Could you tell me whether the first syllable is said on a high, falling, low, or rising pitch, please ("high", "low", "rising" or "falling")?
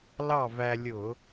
falling